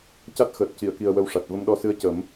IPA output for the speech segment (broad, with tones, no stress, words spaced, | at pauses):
ca˦˥t̚xəː˨˩t̚ ci˨˩˨ə̯ki˨˩ə̯ wə˧wʂa˨˩t̚ və˧mɗɔ˧sɨ˧˥ə̯ cə˨˩˦m